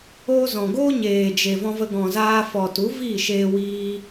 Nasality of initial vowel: oral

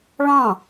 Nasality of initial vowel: nasal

